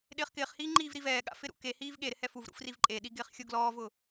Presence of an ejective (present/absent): present